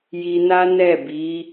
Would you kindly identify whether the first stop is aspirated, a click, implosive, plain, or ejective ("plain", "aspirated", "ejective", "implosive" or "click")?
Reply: plain